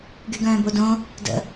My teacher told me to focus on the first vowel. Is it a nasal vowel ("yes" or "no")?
no